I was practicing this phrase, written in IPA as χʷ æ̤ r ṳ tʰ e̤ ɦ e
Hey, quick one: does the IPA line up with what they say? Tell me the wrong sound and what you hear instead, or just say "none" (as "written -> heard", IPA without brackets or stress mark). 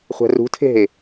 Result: none